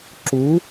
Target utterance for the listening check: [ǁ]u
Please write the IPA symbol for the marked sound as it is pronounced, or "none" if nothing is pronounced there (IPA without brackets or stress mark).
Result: ǁ